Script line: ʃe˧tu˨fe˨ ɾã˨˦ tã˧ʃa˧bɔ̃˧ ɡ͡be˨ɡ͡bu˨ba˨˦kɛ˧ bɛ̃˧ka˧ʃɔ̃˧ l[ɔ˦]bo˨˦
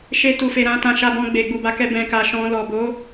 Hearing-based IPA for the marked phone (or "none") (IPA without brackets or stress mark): ɔ˨